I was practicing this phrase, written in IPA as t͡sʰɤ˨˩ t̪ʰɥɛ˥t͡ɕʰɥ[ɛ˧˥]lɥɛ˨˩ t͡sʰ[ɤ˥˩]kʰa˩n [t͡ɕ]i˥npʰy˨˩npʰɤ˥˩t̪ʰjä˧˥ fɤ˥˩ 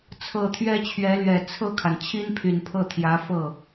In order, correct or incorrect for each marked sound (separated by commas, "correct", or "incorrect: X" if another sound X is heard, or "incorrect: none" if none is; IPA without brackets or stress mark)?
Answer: correct, correct, incorrect: t͡ɕʰ